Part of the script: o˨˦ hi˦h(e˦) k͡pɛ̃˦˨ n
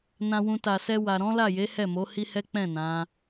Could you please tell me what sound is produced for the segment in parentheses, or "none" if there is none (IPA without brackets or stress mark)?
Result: ɛ˦